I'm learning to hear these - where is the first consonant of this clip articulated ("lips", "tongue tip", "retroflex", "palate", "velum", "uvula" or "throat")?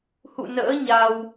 throat